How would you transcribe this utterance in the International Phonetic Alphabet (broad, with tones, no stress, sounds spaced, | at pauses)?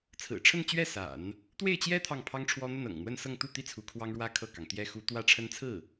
t͡sʰ ɹ̩˨˩ ʈ͡ʂʰ ə˥˧ n t͡ɕ ɥ ɛ˥˩ s a̰˨˩˦ n | t̪ w e˥˩ ɪ̯ t͡ɕ j ɛ˥ t̪ʰ ɑ˥˩ ŋ pʰ ɑ˥ ŋ ʈ͡ʂʰ w ɔ˥ n̪ ə˥˩ n ɤ̰˨˩ ŋ n̪ w ə˥˧ n s ɤ˥˧ ŋ t̪ u˥˩ t̪ i˥ t͡sʰ u˧˥ kʰ w ɑ˥ ŋ ɻ w ä˥ kʰ ɤ˥˩ k ɑ˩ ŋ t̪ j ɛ˥ x u˧˥ t̪ w ä˥ ʈ͡ʂʰ ə˥ n t͡sʰ ɹ̩˥˩